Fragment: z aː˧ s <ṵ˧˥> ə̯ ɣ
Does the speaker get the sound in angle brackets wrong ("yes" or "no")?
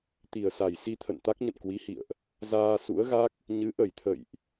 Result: no